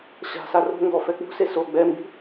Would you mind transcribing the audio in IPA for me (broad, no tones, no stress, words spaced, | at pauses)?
ɕa̤sa ro̤ŋɡɔ fɛk͡pṳse so ɡ͡bɛmbi̤